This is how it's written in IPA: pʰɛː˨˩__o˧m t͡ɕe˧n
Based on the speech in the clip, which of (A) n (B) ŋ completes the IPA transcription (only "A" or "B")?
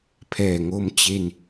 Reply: B